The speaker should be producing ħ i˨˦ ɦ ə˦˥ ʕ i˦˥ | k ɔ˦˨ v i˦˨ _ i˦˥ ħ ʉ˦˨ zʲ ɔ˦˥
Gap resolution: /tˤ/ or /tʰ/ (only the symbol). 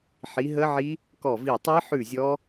tˤ